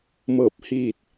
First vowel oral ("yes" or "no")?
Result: yes